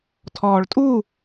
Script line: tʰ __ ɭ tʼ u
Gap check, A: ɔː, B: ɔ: A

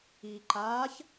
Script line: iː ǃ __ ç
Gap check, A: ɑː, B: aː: B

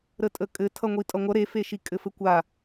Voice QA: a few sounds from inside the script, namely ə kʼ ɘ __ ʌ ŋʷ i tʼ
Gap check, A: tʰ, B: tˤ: A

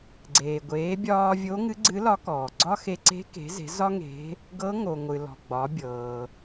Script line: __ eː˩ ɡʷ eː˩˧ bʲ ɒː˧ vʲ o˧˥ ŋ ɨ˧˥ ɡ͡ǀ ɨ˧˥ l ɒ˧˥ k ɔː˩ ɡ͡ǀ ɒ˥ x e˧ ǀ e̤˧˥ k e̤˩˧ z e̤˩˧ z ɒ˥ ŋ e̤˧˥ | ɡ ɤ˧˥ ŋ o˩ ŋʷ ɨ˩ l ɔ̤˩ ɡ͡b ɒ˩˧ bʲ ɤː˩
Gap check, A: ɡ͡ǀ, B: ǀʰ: A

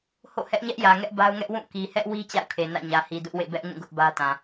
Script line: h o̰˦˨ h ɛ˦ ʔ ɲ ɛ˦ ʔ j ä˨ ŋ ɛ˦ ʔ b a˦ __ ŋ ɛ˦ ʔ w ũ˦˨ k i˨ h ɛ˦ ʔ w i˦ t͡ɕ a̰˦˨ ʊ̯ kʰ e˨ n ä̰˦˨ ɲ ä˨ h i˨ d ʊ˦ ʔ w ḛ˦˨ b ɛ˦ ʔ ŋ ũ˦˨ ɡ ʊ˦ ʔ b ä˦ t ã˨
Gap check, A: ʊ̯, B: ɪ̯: A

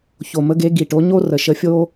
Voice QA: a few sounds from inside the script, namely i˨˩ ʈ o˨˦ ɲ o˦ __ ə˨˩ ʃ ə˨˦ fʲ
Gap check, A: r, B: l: A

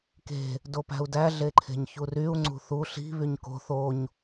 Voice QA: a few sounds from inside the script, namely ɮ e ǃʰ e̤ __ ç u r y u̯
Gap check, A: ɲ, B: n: A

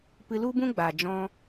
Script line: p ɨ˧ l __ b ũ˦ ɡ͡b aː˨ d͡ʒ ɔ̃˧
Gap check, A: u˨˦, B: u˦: B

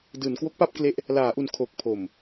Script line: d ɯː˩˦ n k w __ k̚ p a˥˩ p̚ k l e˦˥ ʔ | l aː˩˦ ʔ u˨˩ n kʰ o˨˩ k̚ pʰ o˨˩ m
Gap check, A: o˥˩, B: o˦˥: B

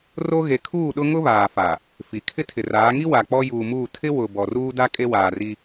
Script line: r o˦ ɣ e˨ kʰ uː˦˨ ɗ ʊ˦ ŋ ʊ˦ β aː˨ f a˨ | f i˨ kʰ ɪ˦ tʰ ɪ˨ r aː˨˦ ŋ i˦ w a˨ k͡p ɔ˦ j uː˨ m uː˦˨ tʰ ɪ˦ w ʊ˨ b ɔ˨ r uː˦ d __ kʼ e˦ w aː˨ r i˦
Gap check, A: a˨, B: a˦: B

